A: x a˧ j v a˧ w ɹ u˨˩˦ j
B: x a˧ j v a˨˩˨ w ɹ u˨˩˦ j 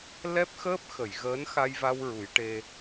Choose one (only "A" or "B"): A